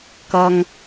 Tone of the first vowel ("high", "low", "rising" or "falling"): high